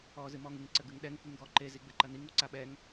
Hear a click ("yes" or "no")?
yes